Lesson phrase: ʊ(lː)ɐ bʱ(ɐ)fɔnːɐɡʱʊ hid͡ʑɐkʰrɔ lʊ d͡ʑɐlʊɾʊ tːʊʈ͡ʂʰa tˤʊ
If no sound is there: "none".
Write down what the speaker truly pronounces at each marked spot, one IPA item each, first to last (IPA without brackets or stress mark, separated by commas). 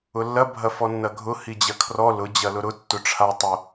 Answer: lː, ɐ